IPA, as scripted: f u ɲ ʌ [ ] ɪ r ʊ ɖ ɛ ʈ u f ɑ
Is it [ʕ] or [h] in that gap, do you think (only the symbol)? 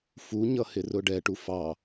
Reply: h